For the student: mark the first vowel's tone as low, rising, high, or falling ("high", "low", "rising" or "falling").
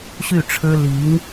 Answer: falling